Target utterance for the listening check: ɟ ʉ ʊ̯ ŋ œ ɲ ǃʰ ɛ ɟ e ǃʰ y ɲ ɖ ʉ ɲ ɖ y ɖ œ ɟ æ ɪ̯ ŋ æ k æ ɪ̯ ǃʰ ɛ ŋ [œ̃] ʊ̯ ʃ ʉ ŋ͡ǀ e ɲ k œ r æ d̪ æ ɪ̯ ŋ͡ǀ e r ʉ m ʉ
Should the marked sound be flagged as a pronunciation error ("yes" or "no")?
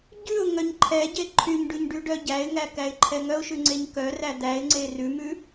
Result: yes